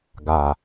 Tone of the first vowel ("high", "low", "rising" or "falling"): low